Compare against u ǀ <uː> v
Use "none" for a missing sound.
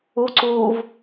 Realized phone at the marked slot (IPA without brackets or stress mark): uː